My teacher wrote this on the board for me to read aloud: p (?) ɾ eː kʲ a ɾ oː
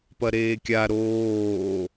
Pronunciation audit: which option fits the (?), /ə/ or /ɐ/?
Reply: ɐ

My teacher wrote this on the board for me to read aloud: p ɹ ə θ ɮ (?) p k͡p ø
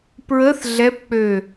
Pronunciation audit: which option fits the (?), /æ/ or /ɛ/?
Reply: ɛ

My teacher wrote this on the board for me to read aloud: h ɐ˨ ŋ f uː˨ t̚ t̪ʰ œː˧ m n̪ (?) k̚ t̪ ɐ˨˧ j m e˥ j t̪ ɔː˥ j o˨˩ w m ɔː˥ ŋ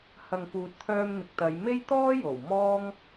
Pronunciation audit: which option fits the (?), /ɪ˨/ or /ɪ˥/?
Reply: ɪ˨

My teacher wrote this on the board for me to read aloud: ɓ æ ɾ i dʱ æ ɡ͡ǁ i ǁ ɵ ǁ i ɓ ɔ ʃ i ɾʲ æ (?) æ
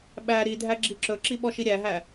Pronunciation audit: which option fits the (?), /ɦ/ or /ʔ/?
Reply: ɦ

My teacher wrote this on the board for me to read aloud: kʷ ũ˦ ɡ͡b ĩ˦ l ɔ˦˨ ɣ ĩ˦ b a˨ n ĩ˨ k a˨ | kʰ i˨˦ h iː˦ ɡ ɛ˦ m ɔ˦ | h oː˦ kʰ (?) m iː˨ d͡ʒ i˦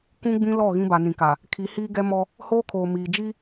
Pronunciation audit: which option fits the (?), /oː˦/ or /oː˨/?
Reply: oː˨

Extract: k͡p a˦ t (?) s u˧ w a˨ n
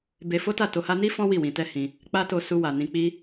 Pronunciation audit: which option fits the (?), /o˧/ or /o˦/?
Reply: o˧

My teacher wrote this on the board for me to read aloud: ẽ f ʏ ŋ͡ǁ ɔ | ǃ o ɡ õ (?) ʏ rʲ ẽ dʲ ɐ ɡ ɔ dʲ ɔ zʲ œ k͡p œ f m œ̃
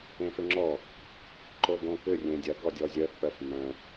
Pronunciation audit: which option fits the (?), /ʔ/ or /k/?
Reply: k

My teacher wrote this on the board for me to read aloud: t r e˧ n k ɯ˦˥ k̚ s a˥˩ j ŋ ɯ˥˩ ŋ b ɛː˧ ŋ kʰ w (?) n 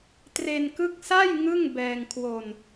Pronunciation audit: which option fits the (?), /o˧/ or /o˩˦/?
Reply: o˧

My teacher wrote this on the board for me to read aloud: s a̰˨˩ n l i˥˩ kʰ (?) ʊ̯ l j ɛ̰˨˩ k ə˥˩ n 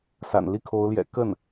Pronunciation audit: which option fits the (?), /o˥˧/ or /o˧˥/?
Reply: o˧˥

